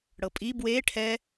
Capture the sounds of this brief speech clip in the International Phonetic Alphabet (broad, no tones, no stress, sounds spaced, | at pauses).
ɽ ɤ pʼ i b w e ʈʰ ɛ